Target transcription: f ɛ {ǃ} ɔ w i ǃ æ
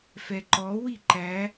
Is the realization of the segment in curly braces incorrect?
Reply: no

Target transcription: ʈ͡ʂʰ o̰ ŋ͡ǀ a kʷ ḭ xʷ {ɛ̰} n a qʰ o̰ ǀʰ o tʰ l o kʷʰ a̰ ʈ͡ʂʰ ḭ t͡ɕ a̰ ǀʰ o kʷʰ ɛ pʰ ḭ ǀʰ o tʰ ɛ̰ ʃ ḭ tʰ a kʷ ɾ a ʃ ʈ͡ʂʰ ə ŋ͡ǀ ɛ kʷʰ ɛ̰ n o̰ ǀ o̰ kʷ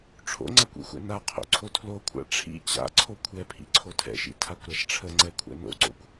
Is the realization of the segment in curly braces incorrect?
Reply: no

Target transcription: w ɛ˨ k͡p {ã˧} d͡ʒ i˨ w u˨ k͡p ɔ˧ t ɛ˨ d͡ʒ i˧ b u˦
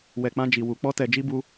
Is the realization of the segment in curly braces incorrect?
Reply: no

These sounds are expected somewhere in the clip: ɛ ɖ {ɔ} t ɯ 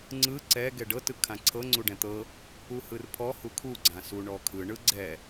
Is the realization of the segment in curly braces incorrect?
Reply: yes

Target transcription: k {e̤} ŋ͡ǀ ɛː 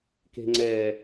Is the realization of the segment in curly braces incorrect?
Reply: no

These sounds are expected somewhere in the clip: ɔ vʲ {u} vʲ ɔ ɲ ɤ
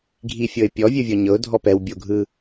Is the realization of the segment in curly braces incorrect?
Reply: yes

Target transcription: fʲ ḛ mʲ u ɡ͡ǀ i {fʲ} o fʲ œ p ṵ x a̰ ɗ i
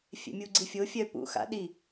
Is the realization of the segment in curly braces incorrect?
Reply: no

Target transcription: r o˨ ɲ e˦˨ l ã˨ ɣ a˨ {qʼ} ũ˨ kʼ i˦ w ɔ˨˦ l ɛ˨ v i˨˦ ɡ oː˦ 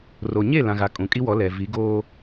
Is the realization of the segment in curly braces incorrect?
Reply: yes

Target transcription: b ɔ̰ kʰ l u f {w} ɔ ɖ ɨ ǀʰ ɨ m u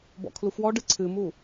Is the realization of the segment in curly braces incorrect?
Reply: no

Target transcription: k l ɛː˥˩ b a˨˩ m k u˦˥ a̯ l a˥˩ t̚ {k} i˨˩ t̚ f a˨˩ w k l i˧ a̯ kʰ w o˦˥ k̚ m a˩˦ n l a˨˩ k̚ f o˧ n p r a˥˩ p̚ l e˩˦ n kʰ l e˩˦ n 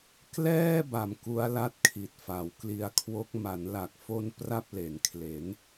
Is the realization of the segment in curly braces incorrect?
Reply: yes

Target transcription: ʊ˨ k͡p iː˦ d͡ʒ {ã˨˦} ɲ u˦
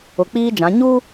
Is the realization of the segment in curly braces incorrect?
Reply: no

